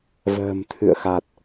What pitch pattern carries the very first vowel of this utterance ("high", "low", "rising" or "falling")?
low